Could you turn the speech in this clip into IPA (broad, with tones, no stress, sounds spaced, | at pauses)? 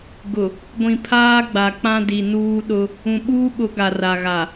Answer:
ɡ ʊ˨ | ɡʷ ĩ˨ pʰ aː˦ ɡ͡b a˨ k͡p ã˦ d i˨ n uː˦ ɗ ʊ˦ | ũ˨ ɓ uː˦ ɓ ʊ˨˦ ɡ a˨ r a˨ ɣ a˨